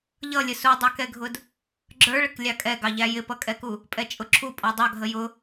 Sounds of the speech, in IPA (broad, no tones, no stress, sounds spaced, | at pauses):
ʎ ʌ lʲ ə s u dˤ ə˞ k ɛ ɡʱ ʊ d | ɡ͡ǁ ə˞ ɭ ə k lʲ ɑ kʼ ɛ ɡ ɑ ʎ æ j ɪ p ʌ kʼ ɛ k u | pʼ ɛ t͡ʃʼ ʊ ǁʰ u pʼ ɔ dˤ ɑ ɡʱ ə j ʊ